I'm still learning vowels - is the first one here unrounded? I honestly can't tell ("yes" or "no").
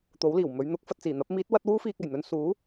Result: no